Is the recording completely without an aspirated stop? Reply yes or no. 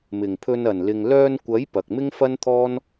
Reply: no